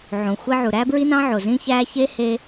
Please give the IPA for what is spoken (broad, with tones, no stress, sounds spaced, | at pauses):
ʕ õ˩ xʷ e˥ ʕ u˩ ɾ æː˥ b ɹ i˥ n ɑ̃˥ ʕ o˩ z ĩ˥ ç æː˥ ç e˥ h e˥